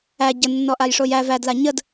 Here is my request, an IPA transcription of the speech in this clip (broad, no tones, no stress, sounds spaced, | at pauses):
æ ɟ ə nː ɔ ʔ a j ʂ o j æ v æ d l a ɲ ə d